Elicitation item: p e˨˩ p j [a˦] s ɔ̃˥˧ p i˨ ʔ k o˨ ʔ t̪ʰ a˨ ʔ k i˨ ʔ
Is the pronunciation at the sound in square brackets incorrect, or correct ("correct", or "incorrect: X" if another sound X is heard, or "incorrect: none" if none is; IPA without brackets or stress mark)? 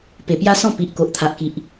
correct